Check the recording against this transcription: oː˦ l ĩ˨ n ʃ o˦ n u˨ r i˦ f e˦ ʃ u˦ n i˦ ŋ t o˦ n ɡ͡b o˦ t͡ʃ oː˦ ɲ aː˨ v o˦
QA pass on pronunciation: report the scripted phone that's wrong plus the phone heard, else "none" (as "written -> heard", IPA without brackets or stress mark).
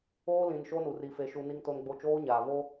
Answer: none